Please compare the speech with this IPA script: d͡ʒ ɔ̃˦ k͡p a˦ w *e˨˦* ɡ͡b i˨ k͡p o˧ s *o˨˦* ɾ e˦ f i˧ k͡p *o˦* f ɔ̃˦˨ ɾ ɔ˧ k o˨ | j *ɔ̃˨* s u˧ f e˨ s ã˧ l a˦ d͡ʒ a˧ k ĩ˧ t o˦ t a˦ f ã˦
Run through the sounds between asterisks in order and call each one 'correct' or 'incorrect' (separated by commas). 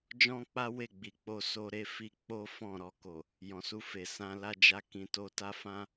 incorrect, incorrect, correct, correct